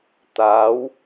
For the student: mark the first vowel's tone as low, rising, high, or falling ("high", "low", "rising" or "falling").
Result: rising